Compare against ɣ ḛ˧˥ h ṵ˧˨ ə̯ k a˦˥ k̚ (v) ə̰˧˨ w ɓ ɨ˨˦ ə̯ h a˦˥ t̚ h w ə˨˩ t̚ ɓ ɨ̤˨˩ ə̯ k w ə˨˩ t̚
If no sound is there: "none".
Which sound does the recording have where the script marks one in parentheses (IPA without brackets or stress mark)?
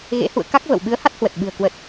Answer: v